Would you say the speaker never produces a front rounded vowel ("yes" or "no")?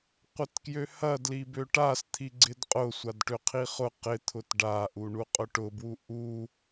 no